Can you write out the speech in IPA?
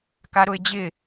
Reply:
k a ɾ ʊ ɪ̯ d͡ʑ ɪ

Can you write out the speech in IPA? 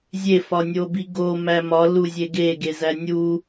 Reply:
zʲ e f ɒ nʲ o b i ɡ o m æ m ɒ l u zʲ e ɡ e ɡ e z æ nʲ u

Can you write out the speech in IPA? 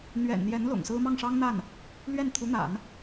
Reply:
n̪ ɥ ɛ̰˨˩ n n̪ j ɛ˧˥ n l ʊ̰˨˩ ŋ s ɹ̩˥ m ɑ˥˩ ŋ ʂ ɑ˥ ŋ n̪ a˥˩ n | l ɥ ɛ˥˩ n t̪ʰ u˧˥ n̪ a̰˨˩˦ n

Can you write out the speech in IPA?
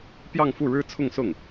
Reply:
p j ɑ˥˧ ŋ f u˥˩ ɻ ɻ̩˥ t͡sʰ ʊ˥˧ ŋ s ʊ˥˩ ŋ

